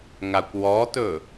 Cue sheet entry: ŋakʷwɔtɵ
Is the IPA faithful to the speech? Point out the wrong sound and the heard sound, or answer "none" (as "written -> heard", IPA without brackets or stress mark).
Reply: none